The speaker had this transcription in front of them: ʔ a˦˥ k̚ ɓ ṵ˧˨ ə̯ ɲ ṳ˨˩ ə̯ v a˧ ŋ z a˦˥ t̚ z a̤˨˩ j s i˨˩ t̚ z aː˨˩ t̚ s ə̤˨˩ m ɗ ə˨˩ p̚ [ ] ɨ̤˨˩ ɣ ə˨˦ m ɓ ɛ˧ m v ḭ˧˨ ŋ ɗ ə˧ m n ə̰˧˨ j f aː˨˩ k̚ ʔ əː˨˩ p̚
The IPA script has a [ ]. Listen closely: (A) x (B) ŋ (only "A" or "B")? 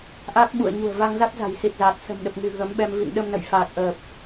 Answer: B